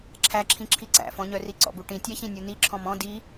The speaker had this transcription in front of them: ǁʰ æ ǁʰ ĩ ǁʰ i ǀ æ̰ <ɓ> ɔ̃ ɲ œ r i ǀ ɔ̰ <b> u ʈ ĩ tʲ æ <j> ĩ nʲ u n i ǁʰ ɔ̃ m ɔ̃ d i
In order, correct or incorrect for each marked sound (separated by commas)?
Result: incorrect, correct, incorrect